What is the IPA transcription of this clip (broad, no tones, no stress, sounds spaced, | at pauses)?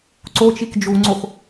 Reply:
ǀ o t͡ʃ i k d͡ʒ u ŋ͡ǀ o x